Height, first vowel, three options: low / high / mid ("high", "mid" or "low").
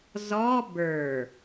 mid